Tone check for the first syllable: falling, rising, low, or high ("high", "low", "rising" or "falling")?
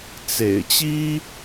low